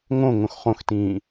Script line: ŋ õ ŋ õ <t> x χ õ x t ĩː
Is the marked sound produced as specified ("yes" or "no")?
no